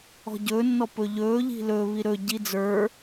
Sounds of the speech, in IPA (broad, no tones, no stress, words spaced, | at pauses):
ɔ̤ɟɵːnːɔ pɵʎɵːʎi̤ lɵβi ɾɵɟi d͡zə˞